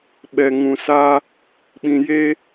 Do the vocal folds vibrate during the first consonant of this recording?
yes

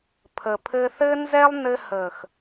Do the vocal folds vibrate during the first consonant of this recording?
no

